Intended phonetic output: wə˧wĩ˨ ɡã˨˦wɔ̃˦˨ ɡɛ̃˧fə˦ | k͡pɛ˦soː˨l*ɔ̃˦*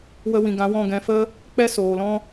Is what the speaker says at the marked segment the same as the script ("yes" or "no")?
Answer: yes